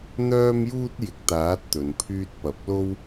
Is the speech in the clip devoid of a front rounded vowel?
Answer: no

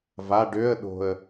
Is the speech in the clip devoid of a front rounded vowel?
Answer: no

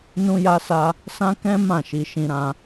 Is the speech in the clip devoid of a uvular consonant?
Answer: yes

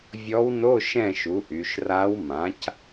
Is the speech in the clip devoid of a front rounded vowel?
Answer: no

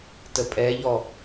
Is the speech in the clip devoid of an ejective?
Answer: no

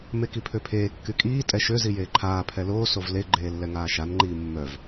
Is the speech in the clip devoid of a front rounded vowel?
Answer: no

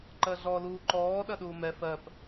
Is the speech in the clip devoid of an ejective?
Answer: yes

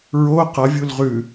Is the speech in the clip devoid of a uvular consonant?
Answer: no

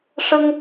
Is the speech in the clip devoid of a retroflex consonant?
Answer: no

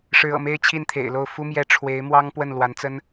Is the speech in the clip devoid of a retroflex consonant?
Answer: no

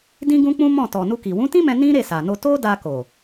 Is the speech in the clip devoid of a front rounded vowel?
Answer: yes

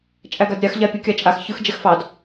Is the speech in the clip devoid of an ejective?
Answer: no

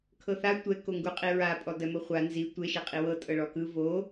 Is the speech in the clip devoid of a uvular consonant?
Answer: no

